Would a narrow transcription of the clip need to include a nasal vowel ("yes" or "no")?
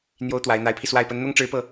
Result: no